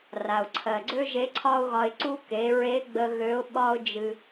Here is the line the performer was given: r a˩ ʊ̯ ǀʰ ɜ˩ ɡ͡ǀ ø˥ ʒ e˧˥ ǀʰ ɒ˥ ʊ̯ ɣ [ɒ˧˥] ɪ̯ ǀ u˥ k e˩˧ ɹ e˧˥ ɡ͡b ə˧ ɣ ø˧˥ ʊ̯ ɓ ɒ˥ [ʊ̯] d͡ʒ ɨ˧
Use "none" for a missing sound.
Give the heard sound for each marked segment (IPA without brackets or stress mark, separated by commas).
ɒ˧, ʊ̯